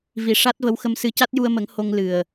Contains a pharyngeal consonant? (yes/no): no